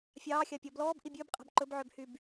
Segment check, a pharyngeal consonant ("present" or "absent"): present